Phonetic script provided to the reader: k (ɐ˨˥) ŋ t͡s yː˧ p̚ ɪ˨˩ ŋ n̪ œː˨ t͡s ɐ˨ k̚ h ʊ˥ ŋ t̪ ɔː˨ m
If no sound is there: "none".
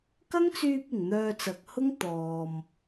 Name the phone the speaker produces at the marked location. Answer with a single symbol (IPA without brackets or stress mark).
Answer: ɐ˥